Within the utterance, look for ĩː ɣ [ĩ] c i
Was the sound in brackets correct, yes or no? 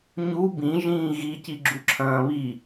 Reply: no